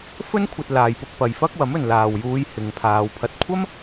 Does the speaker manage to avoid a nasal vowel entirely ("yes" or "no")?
yes